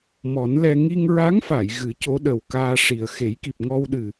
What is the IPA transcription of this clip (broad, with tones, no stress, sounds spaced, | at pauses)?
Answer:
m ɔ˨˩˦ n l ɛ˧ ŋ i˧ ŋ ɹ a˧˥ ŋ f a˨˩˨ j ɣ ɨ˨˩˦ c o˧˥ ɗ ə˨˩ w k aː˧ ʂ i˨˩ ə̯ x e˨˩˦ j k i˨˩ p̚ ŋ ɔ˧ w ɗ ɨ˨˩